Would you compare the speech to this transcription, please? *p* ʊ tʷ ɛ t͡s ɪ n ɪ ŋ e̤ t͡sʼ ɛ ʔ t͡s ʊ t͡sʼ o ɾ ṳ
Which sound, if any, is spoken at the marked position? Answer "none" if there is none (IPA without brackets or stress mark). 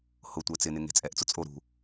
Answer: h